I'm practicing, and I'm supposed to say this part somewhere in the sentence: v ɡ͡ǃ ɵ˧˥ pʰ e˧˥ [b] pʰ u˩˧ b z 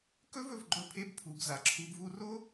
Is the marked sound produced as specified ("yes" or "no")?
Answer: yes